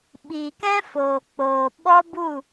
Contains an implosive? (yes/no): yes